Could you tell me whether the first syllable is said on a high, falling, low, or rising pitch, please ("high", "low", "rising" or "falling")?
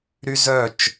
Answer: high